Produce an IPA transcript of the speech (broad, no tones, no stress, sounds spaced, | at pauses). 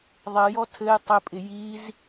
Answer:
ðˤ ɪ j ɔ tʰ ɘ j tˤ ɪ pʼ ɪ j i z